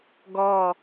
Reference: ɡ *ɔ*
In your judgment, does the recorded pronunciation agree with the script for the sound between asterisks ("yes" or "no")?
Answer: yes